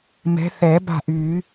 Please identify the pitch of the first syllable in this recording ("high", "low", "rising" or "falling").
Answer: rising